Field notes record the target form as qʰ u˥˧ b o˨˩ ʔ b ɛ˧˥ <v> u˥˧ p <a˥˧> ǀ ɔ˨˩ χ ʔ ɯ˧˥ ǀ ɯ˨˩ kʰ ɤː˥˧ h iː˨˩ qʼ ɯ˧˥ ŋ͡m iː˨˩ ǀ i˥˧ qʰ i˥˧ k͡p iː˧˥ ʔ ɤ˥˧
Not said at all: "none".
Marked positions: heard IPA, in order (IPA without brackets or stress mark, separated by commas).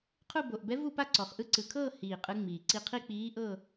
v, a˥˧